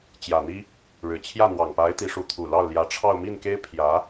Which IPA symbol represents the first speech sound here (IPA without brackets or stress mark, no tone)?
t͡ɕ